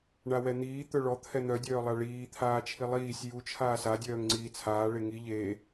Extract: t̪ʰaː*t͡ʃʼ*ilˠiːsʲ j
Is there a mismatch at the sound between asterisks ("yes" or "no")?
yes